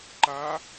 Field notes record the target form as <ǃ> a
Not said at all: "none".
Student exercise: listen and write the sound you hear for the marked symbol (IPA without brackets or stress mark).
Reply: ǃ